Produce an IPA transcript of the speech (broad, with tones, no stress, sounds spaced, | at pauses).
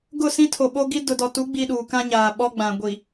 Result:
ɡ ʊ˦˨ s ĩ˦ tʰ o˨ ɓ o˦ ɡ i˦ d ʊ˨ d ɔ˨ t u˨˦ ɡ͡b iː˦ ɗ uː˨ k ã˦ ɲ aː˨ ɓ ɔ˦ ɡ͡b ã˨ ɡʷ i˨